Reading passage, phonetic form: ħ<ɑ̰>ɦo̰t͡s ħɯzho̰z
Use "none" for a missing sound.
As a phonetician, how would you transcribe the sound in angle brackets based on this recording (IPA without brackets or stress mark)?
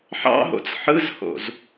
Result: ɑ̰